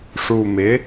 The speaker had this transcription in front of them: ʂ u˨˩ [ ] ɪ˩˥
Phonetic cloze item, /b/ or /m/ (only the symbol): m